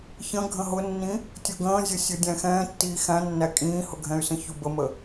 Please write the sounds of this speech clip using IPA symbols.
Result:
ç ə̃ ɡʱ ə̃ ɦ ʊ nː ĩ | tʲ ʊ ɡ ə̃ː zʲ ʊ sʲ u dʲ æ̃ x ɛ̃ː tː iː x æ̃ nː æ kʼ ĩː h ʊ ɡʱ ɛ̃ y̯ s ə̃ ç u b ə m ə

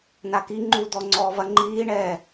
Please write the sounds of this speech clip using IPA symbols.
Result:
n a k i ŋ͡ǃ u d̪ ɔ ŋ͡ǀ ɔː β ɐ ŋ͡ǃ iː ɳ ɛː

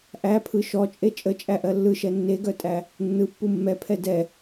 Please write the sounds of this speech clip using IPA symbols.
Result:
ʔ æ pʰ ɯ ʃ ɔ t͡ʃʼ e t͡ʃʼ ə t͡ʃʼ æ ʔ ɜ lː ɯ ʃ ɛ nː e ɡ œ tʼ æ | nː ɯ pː u mː ɛ pʰ ɛ d ɛ

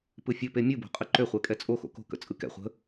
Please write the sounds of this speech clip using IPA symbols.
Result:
p ɯ fʲ ɵ p e mʲ ɯ b o̤ qʼ ɨ ǃ ø χʷ ɛ kʼ ɛ t͡sʼ o x o̰ k o̤ k ə̰ t͡sʼ ɯ k ɛ̰ χʷ ə̤

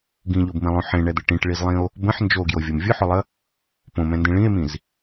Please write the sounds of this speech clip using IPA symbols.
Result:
ɡ ĩ ʎ o b m ĩ lˠ õ ħ ẽ ɳ ɛ d̪ ɘ ʈ ĩ ʈ ɭ i z lˠ ĩ o̯ | b ə̃ ħ n d͡ʒ o ɡ j o vʲ o m vʲ ʊ ħ ʊ lˠ ə | p õ m ɛ̃ n d ĩ ɭ ĩ e̯ m ĩ z

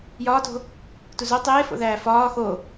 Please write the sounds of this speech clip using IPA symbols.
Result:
j ɒː t o̤ | t u z o tˤ eː f o̰ ð æː f ɒː x o

